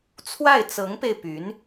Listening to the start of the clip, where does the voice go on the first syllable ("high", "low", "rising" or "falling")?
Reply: falling